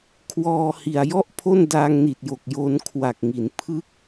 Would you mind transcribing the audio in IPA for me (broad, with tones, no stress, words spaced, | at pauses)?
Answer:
kʰwɔː˧ hi˨˩a̯jɔ˥˩ʔpʰo˥˩n daː˧ŋni˨˩t̚jo˨˩k̚ jo˧n kʰwa˨˩k̚ŋi˩˦n pʰɯ˥˩k̚